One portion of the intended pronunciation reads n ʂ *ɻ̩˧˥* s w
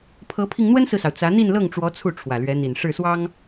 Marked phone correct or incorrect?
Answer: incorrect